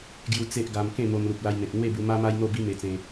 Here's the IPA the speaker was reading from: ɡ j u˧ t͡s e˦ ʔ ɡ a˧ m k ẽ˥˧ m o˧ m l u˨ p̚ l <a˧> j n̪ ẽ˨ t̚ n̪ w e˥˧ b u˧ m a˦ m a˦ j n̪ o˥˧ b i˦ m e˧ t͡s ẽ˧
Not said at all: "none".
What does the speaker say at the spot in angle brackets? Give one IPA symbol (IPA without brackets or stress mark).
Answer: a˧